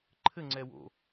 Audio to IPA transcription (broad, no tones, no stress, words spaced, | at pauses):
ǃʰɘŋ͡ǀɛ wo̰